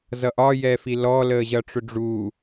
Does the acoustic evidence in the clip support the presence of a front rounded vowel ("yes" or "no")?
no